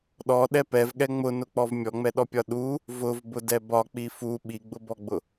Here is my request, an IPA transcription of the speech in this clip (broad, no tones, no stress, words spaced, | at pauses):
ɗɔɗɛ pɛvɠɛ ŋ͡mʊnʊk͡pɔv mʲɔŋ͡mɛɗɔpʲɒ ɗu | vʊvbʊdɛ bɒk͡pi fu ɓiɡ͡bʊbɔɡ͡bʊ